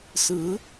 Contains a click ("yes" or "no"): no